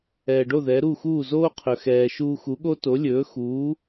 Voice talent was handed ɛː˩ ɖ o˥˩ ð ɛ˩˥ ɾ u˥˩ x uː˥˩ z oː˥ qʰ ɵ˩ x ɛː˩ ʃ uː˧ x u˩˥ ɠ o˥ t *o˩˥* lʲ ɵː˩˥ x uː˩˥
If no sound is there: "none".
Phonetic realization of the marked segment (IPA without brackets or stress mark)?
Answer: o˩˥